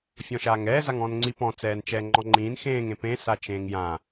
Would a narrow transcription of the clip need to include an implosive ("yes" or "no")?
no